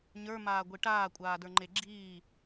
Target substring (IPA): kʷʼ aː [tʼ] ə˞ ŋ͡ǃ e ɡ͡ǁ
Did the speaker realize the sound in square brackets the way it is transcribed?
no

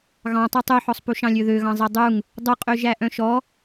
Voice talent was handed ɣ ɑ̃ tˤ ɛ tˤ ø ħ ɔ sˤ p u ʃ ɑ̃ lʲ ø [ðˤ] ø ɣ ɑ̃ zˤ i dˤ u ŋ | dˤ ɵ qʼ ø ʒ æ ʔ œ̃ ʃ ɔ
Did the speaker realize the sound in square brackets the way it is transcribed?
no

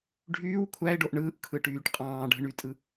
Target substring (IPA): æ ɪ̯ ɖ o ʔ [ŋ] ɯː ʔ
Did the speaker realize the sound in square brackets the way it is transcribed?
no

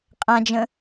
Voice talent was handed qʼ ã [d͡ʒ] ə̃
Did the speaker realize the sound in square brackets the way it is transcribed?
yes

